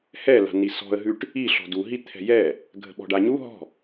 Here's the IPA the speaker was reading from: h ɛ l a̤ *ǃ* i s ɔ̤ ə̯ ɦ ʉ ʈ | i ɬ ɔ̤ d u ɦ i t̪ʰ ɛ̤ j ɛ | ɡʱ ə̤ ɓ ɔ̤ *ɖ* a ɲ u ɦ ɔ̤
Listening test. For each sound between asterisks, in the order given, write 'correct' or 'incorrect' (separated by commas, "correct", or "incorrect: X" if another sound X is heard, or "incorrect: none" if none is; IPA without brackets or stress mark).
incorrect: n, correct